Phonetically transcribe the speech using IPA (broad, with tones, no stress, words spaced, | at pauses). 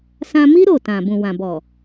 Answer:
sã˧mi˦ ɾo˦˨ tã˨ bũ˨wã˨bɔ˨